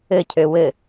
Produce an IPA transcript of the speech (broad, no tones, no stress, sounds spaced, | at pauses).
ɘ cʰ ø w ɘ